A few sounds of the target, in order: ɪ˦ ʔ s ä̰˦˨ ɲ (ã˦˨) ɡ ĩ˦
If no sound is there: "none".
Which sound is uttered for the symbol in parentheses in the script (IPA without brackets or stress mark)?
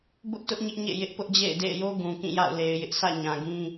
ã˨